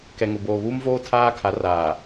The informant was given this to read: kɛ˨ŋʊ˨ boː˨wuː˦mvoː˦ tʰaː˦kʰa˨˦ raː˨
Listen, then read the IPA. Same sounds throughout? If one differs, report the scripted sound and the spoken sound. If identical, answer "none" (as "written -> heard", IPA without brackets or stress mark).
w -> β